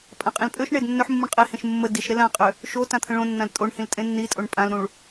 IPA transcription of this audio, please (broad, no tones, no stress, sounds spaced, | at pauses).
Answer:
pʼ ã qʼ ĩ l pʼ ø ʃ ɳ e d nː ø ħ mː ũ ɳ qʼ e h ẽ ʃ mː ə d i ʃ ɾ e l ã qʼ ø | ʃ o t ã t̪ʰ ə̃ ɭ õ nː ã l tʼ o ɳ h ĩ l tʼ ẽ nː i tʼ o ɳ pʼ ã l ɾ ũ ɭ